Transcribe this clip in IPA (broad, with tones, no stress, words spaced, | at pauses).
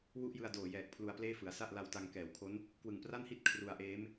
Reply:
wu˥˩ʔjɯ˧a̯doː˨˩jɛː˨˩k̚ pʰlu˧a̯pleː˥˩fɯ˩˦a̯ sa˥˩ʔ la˧wta˧ŋkɛː˩˦wkʰo˦˥n | kwɯ˨˩ŋpra˥˩nhi˥˩t̚ kʰru˧a̯ʔeː˦˥m